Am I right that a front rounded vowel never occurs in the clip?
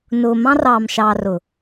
yes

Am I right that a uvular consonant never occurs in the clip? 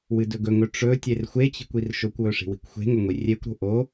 yes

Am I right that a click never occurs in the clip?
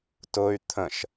yes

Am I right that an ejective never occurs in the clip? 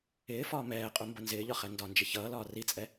no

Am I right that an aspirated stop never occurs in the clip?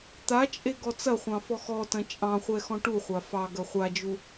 yes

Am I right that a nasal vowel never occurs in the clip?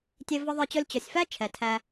yes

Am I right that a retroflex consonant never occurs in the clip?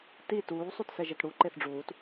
no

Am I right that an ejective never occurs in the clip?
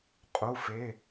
no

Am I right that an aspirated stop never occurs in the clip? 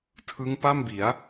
no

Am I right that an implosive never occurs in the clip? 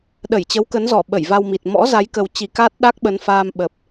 no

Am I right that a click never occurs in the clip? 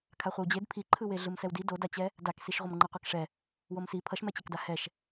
no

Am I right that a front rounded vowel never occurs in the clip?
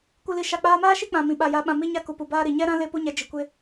yes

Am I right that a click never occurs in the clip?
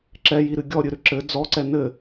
no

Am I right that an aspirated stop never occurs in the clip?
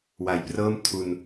no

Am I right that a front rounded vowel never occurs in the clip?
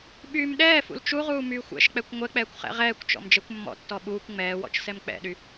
no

